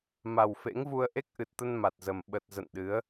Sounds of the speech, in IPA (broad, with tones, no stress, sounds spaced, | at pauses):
m a˨˩ w f ḛ˧˥ ŋ v u˧ ə̯ ʔ e˦˥ k̚ ʔ ɨ˨˩ t̚ t̪ ə˧ n m a˨˩ t̚ z ə˨˩ m ɓ ə˨˩ t̚ z ə̰˧˨ n ɗ ɨ˨˦ ə̯